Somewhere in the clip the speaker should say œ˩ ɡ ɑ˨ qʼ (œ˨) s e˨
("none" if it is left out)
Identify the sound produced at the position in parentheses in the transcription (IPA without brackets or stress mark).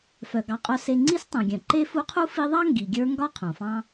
œ˨